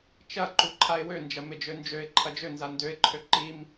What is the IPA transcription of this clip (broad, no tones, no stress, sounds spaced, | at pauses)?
t͡ʃ ɐ ǃ u ǃʰ a ɪ̯ w ø n d͡ʒ ɐ m ɪ d͡ʒ ø n d͡ʒ ø ɪ̯ ǃʰ ɐ d͡ʒ ø n z a n d ø ɪ̯ ǃʰ ø ǃ i m